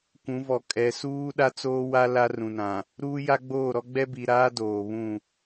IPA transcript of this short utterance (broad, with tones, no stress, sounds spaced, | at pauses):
kʷ ũ˨˦ v ɔ˨ kʼ ɛ˨ s uː˦ ɗ a˦ t͡s oː˦ w a˦ l a˦ r ũ˨ n ã˨ | ɾ uː˦ j a˦ ɡ͡b oː˦˨ ɾ ɔ˦ ɡ͡b ɛ˦ b i˨ ɾ aː˦ d oː˨ β ũ˦˨